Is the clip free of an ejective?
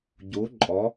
no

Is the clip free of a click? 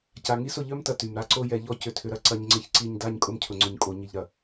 no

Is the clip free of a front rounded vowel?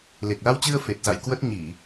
yes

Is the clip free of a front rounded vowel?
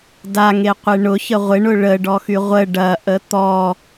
no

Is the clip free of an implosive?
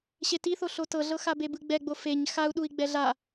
no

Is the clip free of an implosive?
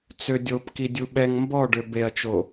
no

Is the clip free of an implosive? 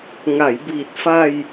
yes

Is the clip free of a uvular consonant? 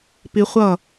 no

